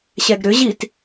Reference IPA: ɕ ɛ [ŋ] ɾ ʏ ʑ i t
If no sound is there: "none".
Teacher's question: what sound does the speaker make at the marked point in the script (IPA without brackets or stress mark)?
ɡ